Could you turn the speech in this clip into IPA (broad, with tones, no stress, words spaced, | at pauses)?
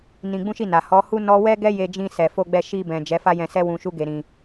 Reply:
nĩ˧ɡ͡bũ˦ʃi˦˨na˨ hɔ˨˦hu˦ nɔ˦ wɛ˦ɡɛ˦je˧ d͡ʒĩ˧sɛ˨fo˧ɡ͡bɛ˧ ʃi˧bɛ̃˨ d͡ʒɛ˨˦fa˦jɛ̃˧sɛ˦ wũ˧ʃu˦ɡe˧ɾĩ˧